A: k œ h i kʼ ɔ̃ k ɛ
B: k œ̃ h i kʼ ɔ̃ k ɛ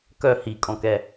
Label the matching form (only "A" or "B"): A